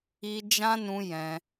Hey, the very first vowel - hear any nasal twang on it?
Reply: no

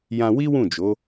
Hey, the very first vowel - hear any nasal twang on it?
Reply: yes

